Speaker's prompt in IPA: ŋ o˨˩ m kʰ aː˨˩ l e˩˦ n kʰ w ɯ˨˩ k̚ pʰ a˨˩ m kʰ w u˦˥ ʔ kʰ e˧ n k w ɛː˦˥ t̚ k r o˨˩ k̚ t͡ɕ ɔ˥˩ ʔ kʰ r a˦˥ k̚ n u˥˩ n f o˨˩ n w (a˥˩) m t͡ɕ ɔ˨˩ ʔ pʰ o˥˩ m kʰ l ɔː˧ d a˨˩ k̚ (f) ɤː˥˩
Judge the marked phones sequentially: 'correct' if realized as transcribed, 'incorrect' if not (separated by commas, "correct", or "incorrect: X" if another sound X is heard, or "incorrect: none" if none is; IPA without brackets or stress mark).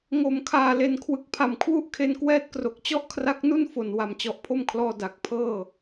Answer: incorrect: a˨˩, incorrect: pʰ